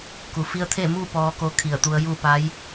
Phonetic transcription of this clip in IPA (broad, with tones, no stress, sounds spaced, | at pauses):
k u˩ f i˧ ə̯ t̪ʰ e˥˨ m uː˥˨ p ɔː˧ k o˧ kʰ i˧˩ ə̯ t̪ u˧˥ ə̯ j uː˥˨ p a˧˥ j